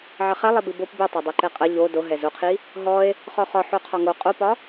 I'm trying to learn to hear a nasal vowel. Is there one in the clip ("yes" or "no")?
no